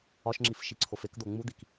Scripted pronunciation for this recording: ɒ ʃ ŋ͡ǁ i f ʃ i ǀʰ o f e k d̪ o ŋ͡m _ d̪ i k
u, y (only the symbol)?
u